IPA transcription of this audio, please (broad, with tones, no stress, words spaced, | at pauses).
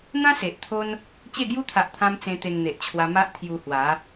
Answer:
n̪ã˦ se˨ʔt̪ʰo˦n | t͡ɕe˥˧ɡju˦t̪ʰa˨ʔt̪ʰã˧m t͡sẽ˧t̪e˧ŋn̪e˨ʔt͡ɕʰwa˧ ma˦ʔt̪ʰju˧hwa˨˦